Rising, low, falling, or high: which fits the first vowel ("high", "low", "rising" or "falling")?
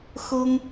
high